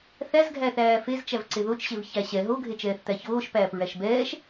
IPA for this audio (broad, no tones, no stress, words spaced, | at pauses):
θæzɡʱæθæː fezt͡ʃæv ǀeðot͡ʃɕev çæɕɛ ɦoɡʱet͡ʃɛːθt̪æ çoːʃpæːp ɹæʃbɛːʃ